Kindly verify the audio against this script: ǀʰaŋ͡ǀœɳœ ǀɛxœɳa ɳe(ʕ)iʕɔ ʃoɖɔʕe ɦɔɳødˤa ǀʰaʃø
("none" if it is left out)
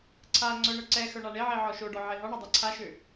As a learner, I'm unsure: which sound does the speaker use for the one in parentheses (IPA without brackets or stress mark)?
ʕ